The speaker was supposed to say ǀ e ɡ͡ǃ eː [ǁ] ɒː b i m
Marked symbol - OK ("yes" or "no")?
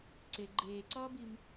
no